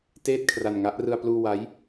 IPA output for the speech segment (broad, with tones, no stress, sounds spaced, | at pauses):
t eː˥˩ t̚ kʰ r a˧ n ŋ a˦˥ ʔ r ɯ˧ a̯ p l uː˧ w a˦˥ j